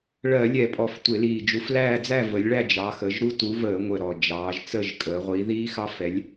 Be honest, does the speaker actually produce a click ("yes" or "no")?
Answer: no